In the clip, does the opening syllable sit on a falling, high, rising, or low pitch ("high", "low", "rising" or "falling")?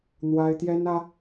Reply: high